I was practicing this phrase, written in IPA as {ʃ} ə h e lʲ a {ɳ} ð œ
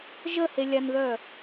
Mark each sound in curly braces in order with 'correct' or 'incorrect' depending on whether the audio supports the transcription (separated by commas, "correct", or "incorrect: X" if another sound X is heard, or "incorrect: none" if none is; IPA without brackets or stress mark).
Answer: incorrect: ʒ, incorrect: n